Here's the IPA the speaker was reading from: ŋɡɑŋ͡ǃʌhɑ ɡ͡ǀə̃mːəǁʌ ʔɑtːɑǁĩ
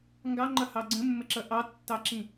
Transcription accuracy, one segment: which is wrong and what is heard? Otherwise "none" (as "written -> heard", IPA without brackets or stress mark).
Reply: none